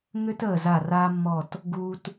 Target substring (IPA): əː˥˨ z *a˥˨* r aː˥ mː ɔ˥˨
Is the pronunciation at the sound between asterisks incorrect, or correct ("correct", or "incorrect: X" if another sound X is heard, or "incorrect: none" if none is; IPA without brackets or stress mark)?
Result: correct